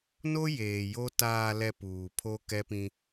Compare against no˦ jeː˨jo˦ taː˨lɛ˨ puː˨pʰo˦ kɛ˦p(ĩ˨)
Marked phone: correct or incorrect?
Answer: incorrect: ĩ˦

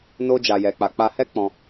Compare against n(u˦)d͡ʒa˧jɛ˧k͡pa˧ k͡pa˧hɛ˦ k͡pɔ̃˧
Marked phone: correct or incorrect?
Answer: incorrect: o˦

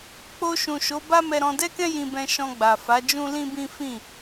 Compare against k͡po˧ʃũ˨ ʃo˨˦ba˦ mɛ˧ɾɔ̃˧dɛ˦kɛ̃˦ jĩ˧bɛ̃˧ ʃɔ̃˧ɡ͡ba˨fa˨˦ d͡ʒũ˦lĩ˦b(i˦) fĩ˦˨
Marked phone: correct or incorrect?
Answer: incorrect: ĩ˦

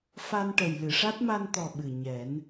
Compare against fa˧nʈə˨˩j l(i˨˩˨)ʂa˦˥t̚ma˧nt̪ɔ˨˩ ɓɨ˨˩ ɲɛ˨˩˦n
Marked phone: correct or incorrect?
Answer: incorrect: ɨ˨˩˨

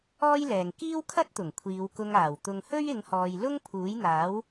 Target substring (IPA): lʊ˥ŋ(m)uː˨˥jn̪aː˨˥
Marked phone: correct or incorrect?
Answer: incorrect: pʰ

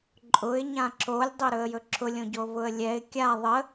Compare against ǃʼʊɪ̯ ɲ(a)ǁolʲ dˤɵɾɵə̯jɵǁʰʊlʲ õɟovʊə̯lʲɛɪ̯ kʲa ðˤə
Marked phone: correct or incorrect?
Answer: incorrect: ã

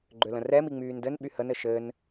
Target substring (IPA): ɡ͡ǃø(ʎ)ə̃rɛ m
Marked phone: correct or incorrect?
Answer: incorrect: l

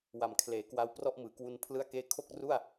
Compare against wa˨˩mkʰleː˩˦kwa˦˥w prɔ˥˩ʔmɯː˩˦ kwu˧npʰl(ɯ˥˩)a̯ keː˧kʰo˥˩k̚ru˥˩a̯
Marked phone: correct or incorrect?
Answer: correct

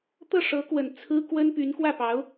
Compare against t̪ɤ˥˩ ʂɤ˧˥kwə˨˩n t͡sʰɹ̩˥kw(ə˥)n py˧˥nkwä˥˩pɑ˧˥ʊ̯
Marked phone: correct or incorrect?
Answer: correct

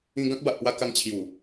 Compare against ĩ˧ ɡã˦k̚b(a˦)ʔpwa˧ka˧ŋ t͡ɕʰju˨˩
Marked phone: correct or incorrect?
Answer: incorrect: a˨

